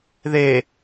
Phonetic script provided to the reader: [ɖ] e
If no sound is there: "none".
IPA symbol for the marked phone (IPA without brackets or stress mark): ð